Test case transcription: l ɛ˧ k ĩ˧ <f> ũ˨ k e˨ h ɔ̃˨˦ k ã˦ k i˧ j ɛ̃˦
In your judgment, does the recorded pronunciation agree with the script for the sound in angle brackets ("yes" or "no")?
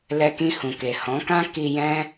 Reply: no